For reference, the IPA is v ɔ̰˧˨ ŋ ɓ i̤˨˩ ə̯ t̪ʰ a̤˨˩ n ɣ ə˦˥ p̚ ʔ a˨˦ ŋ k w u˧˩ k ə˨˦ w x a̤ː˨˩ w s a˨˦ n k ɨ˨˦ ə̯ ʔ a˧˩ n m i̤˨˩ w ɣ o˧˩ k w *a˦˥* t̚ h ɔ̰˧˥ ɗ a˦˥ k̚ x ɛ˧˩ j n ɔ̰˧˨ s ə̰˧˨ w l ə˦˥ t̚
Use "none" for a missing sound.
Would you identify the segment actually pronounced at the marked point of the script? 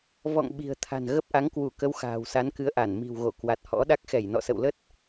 a˨˩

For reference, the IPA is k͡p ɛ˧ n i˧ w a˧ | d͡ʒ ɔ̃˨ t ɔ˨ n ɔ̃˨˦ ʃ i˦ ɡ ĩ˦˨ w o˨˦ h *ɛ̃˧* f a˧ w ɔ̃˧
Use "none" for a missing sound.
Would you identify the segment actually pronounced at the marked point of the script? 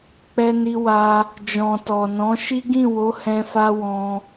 ɛ̃˧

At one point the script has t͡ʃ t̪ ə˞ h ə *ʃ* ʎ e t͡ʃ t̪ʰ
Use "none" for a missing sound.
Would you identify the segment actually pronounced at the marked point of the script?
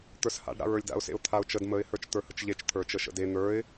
t͡ʃ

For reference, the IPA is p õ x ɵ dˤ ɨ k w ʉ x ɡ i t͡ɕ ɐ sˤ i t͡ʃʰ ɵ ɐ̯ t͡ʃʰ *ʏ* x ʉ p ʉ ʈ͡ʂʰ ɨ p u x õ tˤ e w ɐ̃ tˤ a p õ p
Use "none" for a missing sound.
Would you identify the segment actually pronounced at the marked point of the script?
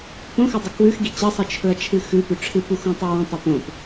ɨ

